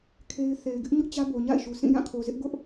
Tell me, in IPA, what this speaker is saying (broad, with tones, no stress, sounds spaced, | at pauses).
kʰ e˦ ɪ̯ θ e˨ ɪ̯ ɡ ɪ˦ ʔ ɲ ʊ˦ ʔ t͡ɕ ä˦ b o˨ ɲ a̰˦˨ ɪ̯ ʃ u˨ s ĩ˦˨ j ã˦˨ kʰ o˨ z ɪ˦ ʔ ɡ ʊ˦ ʔ